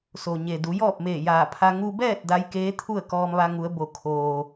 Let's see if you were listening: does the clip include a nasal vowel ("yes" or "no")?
no